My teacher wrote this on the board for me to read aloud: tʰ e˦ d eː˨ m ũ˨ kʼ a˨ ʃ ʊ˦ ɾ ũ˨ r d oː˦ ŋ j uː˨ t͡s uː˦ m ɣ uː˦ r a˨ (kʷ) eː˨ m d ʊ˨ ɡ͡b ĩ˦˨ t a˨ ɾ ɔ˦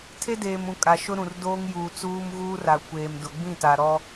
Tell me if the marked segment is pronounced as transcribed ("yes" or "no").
yes